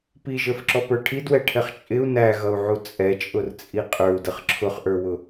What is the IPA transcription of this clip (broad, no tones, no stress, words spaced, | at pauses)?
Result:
piʒə˞fǁɔpə˞ ʈʰidwɛʈʰɛχ t͡ʃʼɪu̯ næɣʌu̯ʕu t͡sʼɛt͡ʃʼʊrt͡sʼi qʼə˞u̯dəχ ǁʰʊχʔə˞wʊ